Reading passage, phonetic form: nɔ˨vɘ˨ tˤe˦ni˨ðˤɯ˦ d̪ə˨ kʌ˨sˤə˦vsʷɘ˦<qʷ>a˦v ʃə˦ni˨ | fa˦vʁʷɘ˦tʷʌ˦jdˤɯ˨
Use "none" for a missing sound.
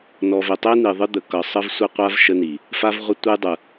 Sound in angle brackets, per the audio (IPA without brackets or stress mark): qʷ